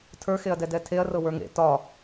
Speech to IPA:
tʰ ə˞ x e ɐ̯ d ɛ d ɛ tʰ e ɐ̯ r ɤ w ə˞ ŋ ḛ t ɒ

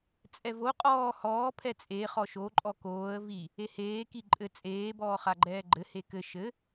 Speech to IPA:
t͡sʼ ɛ v o qʼ ɔː h ɔː pʰ ɛ t͡sʼ eː χ ɔ ʃ o ǃʼ ɔ k oː ə̯ v i | e h eː k i ǃʼ ɘ t͡sʼ eː b ɔː χ a ɡ͡ǃ ɛː ɡ͡ǃ ɘ h e k ɘ ʃ ɘ

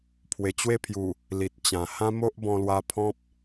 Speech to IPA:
pʰ w e˨˩ t͡ɕ w e˥˧ pʰ j u˨˩ | l i˨ t̚ t͡ɕ ã˨˩ h ã˦ m o˦ ʔ b ɔ̃˧ l w a˧ pʰ ɔ̃˦ p̚

